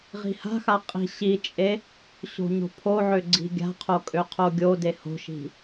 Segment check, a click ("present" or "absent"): present